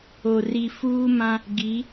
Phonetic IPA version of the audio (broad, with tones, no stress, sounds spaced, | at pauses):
o˨ r i˨ f uː˦ m ã˦ | ɡ i˨˦